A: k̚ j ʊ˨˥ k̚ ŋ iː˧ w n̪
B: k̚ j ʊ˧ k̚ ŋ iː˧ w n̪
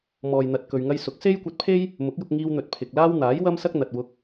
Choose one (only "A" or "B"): B